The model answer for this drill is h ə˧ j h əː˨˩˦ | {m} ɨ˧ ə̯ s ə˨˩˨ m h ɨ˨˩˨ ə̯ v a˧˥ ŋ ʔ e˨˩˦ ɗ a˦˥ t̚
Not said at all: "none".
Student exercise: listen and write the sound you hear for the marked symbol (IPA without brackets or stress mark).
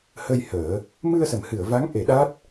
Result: m